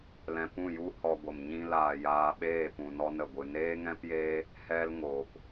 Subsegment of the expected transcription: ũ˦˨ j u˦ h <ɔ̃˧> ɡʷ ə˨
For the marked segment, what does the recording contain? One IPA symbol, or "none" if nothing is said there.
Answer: ɔ˧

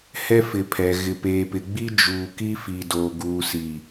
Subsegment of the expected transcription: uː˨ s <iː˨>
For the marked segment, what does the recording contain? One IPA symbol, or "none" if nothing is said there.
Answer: i˨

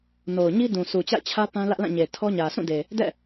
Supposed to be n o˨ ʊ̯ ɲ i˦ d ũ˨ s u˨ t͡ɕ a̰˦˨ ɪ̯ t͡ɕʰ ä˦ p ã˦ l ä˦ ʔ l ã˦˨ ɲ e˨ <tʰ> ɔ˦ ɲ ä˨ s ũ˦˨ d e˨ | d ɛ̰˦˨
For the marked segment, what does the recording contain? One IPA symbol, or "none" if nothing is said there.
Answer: tʰ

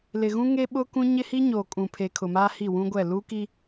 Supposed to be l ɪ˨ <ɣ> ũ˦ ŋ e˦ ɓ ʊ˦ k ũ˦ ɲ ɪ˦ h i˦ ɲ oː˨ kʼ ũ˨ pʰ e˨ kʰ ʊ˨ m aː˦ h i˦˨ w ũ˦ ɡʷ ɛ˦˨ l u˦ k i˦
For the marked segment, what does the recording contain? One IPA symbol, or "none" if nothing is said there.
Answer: ɣ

